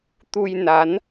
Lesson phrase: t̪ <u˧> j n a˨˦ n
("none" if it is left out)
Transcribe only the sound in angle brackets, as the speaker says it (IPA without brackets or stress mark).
u˧